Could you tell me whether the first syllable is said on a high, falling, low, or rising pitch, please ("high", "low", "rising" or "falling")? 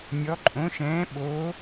rising